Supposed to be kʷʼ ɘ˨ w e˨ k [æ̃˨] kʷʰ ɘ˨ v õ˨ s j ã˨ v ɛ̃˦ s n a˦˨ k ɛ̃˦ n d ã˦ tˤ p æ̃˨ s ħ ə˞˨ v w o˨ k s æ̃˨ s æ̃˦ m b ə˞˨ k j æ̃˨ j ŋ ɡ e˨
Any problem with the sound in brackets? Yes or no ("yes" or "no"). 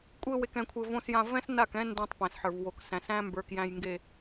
yes